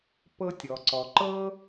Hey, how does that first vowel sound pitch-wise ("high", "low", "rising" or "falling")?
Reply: high